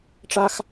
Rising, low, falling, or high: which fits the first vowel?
high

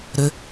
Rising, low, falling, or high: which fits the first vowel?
low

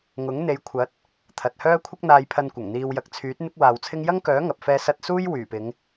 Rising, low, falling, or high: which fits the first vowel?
rising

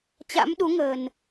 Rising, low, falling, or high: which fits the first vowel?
rising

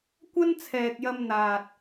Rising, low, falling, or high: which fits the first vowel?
high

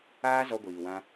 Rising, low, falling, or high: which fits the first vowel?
high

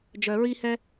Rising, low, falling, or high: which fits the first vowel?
low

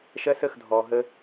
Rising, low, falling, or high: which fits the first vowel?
high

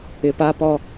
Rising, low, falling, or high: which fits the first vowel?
low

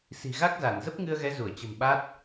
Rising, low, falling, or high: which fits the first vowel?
low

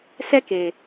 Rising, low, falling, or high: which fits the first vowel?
high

